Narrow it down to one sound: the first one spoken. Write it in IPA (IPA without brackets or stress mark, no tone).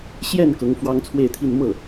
ɕ